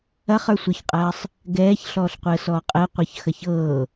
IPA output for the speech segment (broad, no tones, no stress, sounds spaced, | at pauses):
ɐ χ ə˞ sʷ ə˞ ç qʼ ɐː sˤ | ɡ ɛː ç ɬ ɔː ɬ qʷ əː s ɔː qʼ ɛ qʷ ɤ ç x ɐ ç ɤː